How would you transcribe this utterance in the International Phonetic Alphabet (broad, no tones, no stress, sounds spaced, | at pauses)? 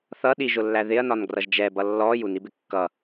θ ʌ ɗ i ʒ ʊ lː æ ð ɪ ɐ̯ n ɒ n ɡ r ʌ ʒ d͡ʒ ɛ b ʌ lː ɔ j u n i b ɪ kː ʌ